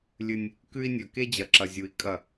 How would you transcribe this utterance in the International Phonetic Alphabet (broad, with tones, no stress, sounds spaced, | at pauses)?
lʲ ɨ˦ nʲ | k ʉ˦ i̯ nʲ ɵ˨ k e˦ d͡ʑ ɐ˨ ǁ ɐ˨ zʲ u˨ i̯ kʼ ɐ˦˨